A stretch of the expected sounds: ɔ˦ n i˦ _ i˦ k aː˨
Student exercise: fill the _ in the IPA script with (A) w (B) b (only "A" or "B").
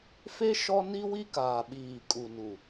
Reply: A